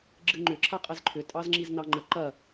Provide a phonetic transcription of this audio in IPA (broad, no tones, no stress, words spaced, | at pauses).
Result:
ɡ͡ǁɨŋ͡ǃʏ ǁʰaqʼɛzǃʰʏ tʼɑzŋ͡ǁiznɑŋ͡ǃə ǃɐ